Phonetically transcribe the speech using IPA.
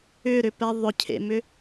ʏ ɾ ʏ p ɛ ðˤ ʊ cʰ ḛ m ʏ

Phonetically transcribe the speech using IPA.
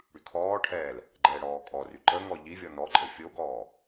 ɽ y kʰ ɔː ʈʰ ɛː l | ɡ͡ǃ ɛː ɽ ɔː kʼ ɔ r y ǃ ə ŋ ɔ ʎ i vʲ ɔ n ɔ ǃʼ ə fʲ o ɡ ɔː

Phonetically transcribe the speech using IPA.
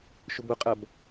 ʃ ʊ b ʊ qʼ ɐ b

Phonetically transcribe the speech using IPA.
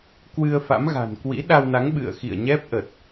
k w ɨ˧ ə̯ f a̰˧˥ m ɣ a̤˨˩ n k w ḭ˧˥ ɗ a˧ w n a˨˦ ŋ ɓ ɨ̰˧˨ ə̯ x ḭ˧˨ ə̯ ɲ ɛ˦˥ p̚ ʔ ə˨˩ t̚

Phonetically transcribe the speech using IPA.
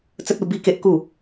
t͡s ə˦ t̚ u˧ b i˦ k e˦ ʔ k u˥˧

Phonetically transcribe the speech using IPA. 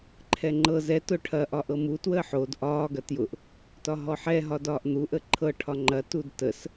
ǃʰ ɛ ŋ͡ǃ ɤ z ɛ t ʊ ʈʰ ɐ ʔ ɒ ʔ ɤ m u t w əː ħ o d ʔ ɒː ɡ ɐ t j ʊ ʔ | t ɒ ɦ ɔ ħ ɛ ɦ ɒ d ɒː ʔ n̪ u ʔ ə ǃʰ ɤ ʈʰ ɒ ŋ͡ǃ ɐ t u d t ə s

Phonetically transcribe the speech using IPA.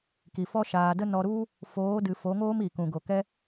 k i˨ f ɔ˦ ʃ aː˨ d ə˦ n ɔ˧ ɾ u˦ | f oː˨˦ d ɨ˨ f o˨˦ ŋ oː˦ m i˨ k ũ˨ ɡ o˨ k ɛ˦

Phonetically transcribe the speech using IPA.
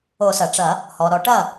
o˨˩˦ s ɐ˩ ʈ͡ʂ ɐ˨˩˦ | h ɔ˩ ɾ ɔ˨˩˦ ʈ ɐ˥˩

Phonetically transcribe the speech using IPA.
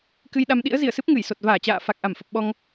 k ɨ˧ j ɗ a˧ m ɗ ḭ˧˥ ə̯ z i˧˩ ə̯ s ɨ˦˥ p̚ ŋ ɨ˧˩ j s o˨˩ t̚ v aː˧˩ t͡ɕ a̰ː˧˨ f a˨˩ k̚ ʔ a˧˩ m f ə˨˩ p̚ ɓ ɔ˧ ŋ

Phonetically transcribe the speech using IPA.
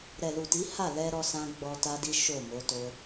ɾ ɛ˨ l u˨ t i˨˦ h a˦˨ l ɛ˧ ɾ ɔ˧ s ã˧ ɡ͡b ɔ˧ t a˦ d i˦ ʃ o˦˨ m o˨˦ t o˧

